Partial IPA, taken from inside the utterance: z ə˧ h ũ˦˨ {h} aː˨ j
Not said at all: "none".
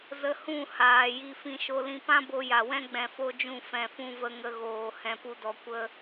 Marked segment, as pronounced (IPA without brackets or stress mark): h